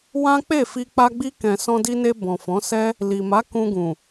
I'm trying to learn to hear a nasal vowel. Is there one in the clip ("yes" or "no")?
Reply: yes